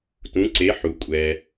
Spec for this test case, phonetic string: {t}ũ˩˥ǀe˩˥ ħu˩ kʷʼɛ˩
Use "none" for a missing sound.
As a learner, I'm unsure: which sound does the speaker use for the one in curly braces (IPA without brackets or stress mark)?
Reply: t